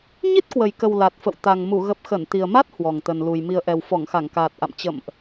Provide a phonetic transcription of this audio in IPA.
ɲ i˦˥ t̚ k w ə˨˩ j k ə˨˩ w l a˨˩ t̚ f ə̰˧˨ w t̪ a˨˩ ŋ m u˧˩ ɣ ə˨˩ p̚ x ə˧˩ n t̪ i˨˩ ə̯ m a˦˥ t̚ h w ɔ˨˩ ŋ t̪ ə˨˩ n l u˨˩ j m i˨˩ ə̯ ʔ ɛ˨˩ w f ɔ˧˩ ŋ x a˧˩ ŋ k aː˨˩ t̚ ʔ a̰˧˨ m t͡ɕ ə̰˧˨ m ʔ

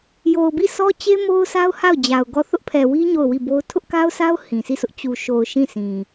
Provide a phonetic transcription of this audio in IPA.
j o˨ ʊ̯ b i˦˨ sʰ ɔ˦ t͡ɕ e˦ m o˦ ʊ̯ sʰ a˦ ʊ̯ h a˦˨ ʊ̯ d͡ʑ a˨ ʊ̯ ɡ ɔ˦˨ θ ʊ˦ ʔ pʰ ɛ˨ w i˦ ɲ o˦˨ ʊ̯ w i˦˨ b o˦ ʊ̯ tʰ ʊ˦ ʔ k a˦ ʊ̯ sʰ a˦ ʊ̯ h ĩ˨ s i˦˨ sʰ ʊ˦ ʔ t͡ɕ u˨ ʃ o˨ ʊ̯ ʃ ĩ˦˨ sʰ ĩ˨

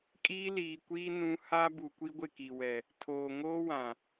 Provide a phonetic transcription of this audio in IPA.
kʼ iː˦ l iː˨ kʷ iː˦ n ũ˦ h a˦ b u˨ kʷ i˦ ɡʷ ɪ˦˨ k i˨ w ɛ˨ | tʰ oː˨ ŋ oː˦ w ã˨

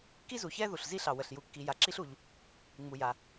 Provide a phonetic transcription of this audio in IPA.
k i˥ z u˩ ç ɛ˥ ð u˩ ɬ z i˥ ɬ ɑ˩ w ə˩ ɬ j u˩ kː i˩ j a˩ ǁ i˥ ɬ u˩ ʎ | ŋ͡m u˩ j a˩

